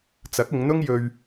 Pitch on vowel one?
rising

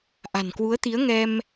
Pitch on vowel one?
low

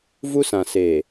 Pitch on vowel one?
high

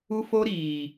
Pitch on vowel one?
high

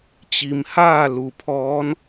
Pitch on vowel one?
low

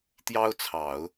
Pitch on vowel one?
high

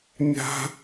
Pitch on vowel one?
high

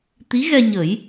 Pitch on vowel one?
rising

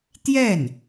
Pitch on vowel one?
falling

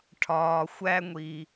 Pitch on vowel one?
low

